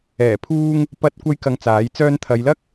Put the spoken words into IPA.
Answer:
ɛː˨˩ pʰ uː˧ ŋ | p ɐ˧ t̚ kʷ ɐ˥ j k ɐ˧ ŋ t͡s aː˨˥ j t͡s œː˧ n t̪ʰ ɐ˨˧ j l ɐ˥ k̚

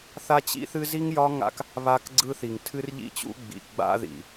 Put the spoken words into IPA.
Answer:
θ a˦ t͡ɕ ḭ˦ θ ɨ˦ z i˦ ŋ j ɒ˦ ŋ a̰˦ k | β a˦ k ɡ͡ǀ ɯ˦ θ i˨ ŋ tʰ ɨ˦ r ʎ ḭ˦ t͡ɕ ṵ˦ ɡ͡b ḭ˨ ɡ͡b a̰˦ ð ḭ˨

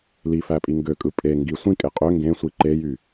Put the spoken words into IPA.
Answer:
l i f æ pʼ i ŋ ɡ ø kʼ ɯ pʼ e ŋ ɡ i sʷ ĩ kʼ e qʼ ø ŋ ɡ ẽ sʷ i ǃ e j y

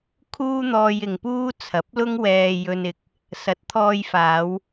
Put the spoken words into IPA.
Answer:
kʰ uː˥ n̪ ɔː˧ j ɪ˨ ŋ p uː˥ t͡sʰ ɐ˨˥ p̚ l ʊ˥ ŋ w ɛː˧ j ɵ˧ n ɪ˨ k̚ | s ɐ˨˥ t̚ t̪ʰ ɔː˧ j f aː˨˧ w

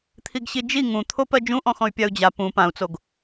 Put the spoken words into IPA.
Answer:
t̪ʰ i ɡ ɕ i d͡ʒ i ŋ ũ t̪ʰ o p ɜ d͡ʒ ũ ʔ ɔ̃ x ɔ̃ y̯ pʲ a u̯ d͡ʑ a p ũ p ã u̯ t͡s o ɡ

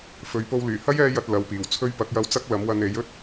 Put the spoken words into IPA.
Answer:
f ɵ˨˧ ɥ p o˧ w l yː˨˩ h ɐ˥ j ɛː˧ j ɐ˨ t̚ l ɐ˨˥ w p iː˨˩ w t͡sʰ ɵ˥ ɥ p ɐ˨˥ k̚ j ɐ˧ w t͡s ɐ˥ k̚ l ɐ˨˥ m w ɐ˧ n e˨˥ j ɵ˥ t̚

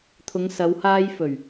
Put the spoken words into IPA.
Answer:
t̪ʰ ʊ˨˧ ŋ s ɐ˨˧ w h aː˧ j f ɵ˨˩ ɥ

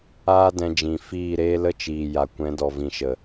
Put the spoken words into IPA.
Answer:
aː˦ d ɛ̃˧ d͡ʒ ĩ˨ f iː˦˨ ɾ eː˦ l ə˦ t͡ʃ iː˨ j a˨ kʷ ɛ̃˨˦ d ɔ˨ v ĩ˨ ʃ ə˨

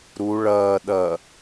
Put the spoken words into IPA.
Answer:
ɾ u ɭ ɐː ɗ ɐ

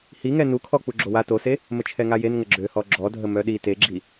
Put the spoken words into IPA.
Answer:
h i ŋ ɛ n u kʰ ɔ k͡p u ɡ͡ǁ o w a t o s e | m ə t͡ʃʰ ɛ ŋ a j e n ŋ ə ɡ͡ǁ ø h ɔ ɡ͡ǁ ɔ dʱ ə m œ ɗ i t e ɡ͡ǁ i

